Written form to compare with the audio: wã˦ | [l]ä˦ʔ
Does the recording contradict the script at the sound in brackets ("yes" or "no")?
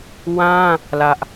no